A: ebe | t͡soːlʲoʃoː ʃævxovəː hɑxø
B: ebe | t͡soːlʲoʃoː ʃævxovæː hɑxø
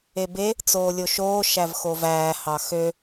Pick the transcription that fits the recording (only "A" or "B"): B